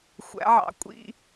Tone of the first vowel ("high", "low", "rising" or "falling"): rising